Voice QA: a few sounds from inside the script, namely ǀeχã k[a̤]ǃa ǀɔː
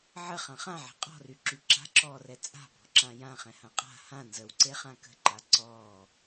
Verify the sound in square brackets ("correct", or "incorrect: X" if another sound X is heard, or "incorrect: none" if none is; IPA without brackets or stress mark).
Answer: incorrect: ə̤